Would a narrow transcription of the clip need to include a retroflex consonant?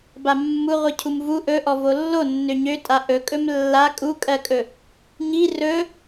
no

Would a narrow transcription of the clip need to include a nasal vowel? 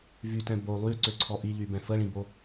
yes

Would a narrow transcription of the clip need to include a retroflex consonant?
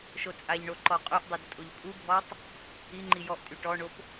yes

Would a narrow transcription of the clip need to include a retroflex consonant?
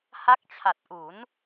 no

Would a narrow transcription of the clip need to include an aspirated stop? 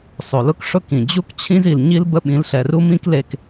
yes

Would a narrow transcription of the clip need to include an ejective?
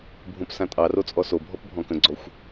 yes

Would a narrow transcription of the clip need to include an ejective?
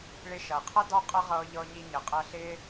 yes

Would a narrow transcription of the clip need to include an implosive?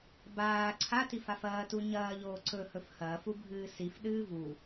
yes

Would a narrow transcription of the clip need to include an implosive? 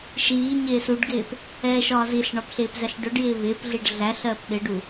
yes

